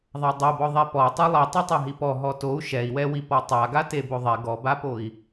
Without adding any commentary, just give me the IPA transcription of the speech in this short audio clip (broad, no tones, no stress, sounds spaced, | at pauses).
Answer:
ðˤ a dˤ o b ɔ ðˤ ɛ p ɔ tˤ ə˞ lˠ i tˤ a tˤ a ɦ i p ɔ ɦ ɔ t o u̯ ʃ ɛ i̯ w ɛ w i p ɔ tˤ a ɡ a t e b o ðˤ ɛ ɡ ɔ b a p o i̯